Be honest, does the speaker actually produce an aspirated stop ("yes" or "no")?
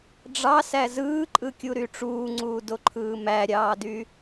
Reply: yes